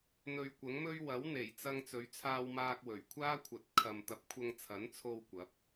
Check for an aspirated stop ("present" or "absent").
present